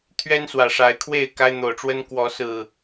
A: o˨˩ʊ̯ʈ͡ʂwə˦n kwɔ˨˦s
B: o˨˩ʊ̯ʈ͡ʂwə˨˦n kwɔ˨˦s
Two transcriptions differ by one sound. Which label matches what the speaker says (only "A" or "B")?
A